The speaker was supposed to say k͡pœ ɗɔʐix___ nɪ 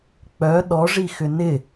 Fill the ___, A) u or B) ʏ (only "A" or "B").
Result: B